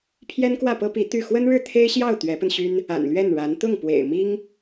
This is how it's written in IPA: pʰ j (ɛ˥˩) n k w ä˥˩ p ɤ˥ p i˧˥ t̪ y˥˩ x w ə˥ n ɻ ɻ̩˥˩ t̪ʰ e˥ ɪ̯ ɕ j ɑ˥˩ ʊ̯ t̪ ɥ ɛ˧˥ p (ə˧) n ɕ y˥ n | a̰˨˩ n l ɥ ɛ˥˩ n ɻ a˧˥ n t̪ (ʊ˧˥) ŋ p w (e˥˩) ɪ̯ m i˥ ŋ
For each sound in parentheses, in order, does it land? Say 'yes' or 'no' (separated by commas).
no, yes, no, no